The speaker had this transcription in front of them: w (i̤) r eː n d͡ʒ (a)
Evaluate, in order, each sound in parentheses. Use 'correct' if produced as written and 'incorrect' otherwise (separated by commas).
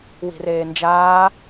correct, incorrect